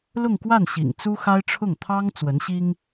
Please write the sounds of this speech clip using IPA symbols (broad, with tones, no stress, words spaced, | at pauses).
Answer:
lʊ˥˧ŋkwa˥˩nɕḭ˨˩ŋ t͡su˥xa˥ɪ̯ʈ͡ʂʰʊ˥˩ŋ t̪ʰɑ˥ŋ t͡swə˧˥nɕi˥ŋ